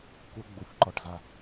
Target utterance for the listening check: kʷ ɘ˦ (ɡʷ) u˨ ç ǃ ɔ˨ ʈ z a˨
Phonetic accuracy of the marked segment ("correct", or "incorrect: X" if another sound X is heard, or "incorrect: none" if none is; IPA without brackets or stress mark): incorrect: ɡ͡b